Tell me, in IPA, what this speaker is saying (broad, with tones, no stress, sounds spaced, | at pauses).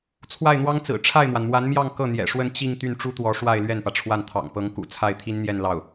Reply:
t͡sʰ w a˥˩ ɪ̯ n̪ w ɑ˥ ŋ t͡s ɹ̩˨˩ ʈ͡ʂʰ a˥˩ ɪ̯ m w a˩ n m w a˧˥ n m j ɑ˥˧ ŋ k ɤ˥˩ n̪ j ɛ̰˨˩ ʂ w ə˥˧ n t͡ɕ i˥˧ ŋ t̪ y˥˩ n ʈ͡ʂ u˥ t̪ w ɔ˧˥ ʂ w a˥˧ ɪ̯ l ɥ ɛ˥˩ n p ä˩ ʈ͡ʂʰ w a˥˩ n t̪ʰ ɑ̰˨˩ ŋ p ɤ˧˥ ŋ k ṵ˨˩ t͡sʰ a˥˩ ɪ̯ t̪ʰ i˥ n n̪ j ɛ˥˧ n l ɑ˥˩ ʊ̯